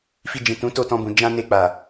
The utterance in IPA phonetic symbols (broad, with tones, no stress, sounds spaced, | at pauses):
f i˧ d͡ʒ ĩ˨ t ũ˨˦ t o˦˨ t ɔ̃˧ b ũ˨ d͡ʒ ã˧ n e˧ k͡p a˨